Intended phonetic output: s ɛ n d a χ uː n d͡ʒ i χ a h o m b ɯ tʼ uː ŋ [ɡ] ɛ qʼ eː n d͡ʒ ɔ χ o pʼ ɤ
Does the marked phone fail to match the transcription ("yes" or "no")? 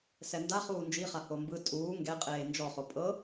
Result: no